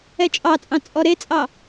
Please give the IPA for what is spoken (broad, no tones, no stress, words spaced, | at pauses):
ɛt͡ʃʼɑt͡sʼɑ̃ t͡sʼɔɾet͡sʼɑ